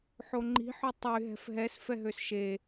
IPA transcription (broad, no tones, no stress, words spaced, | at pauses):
ħoŋ͡ǃi̤ħø tˤy ɦɛ̤fɦɛs fɛɦøsʃe